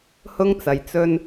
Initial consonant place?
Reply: glottal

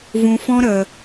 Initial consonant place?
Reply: labial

